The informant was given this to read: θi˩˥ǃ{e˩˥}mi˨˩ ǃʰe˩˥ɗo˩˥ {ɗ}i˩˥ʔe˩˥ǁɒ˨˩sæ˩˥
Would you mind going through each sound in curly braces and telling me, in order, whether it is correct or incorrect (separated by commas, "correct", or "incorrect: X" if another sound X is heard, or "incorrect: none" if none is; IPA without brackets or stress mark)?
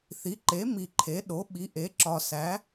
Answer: correct, incorrect: ɓ